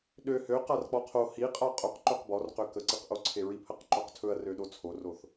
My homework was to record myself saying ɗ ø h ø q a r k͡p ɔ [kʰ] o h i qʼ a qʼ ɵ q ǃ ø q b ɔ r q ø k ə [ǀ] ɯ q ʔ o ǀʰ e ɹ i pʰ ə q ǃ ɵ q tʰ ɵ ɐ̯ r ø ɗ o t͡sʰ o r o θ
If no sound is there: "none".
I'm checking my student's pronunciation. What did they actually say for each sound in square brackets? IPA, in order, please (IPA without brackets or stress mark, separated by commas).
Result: qʰ, ǀ